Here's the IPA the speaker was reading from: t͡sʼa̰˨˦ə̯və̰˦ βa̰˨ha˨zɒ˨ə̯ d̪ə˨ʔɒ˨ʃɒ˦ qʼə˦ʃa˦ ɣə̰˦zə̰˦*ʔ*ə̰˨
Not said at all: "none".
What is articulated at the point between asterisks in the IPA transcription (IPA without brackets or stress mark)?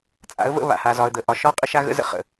χ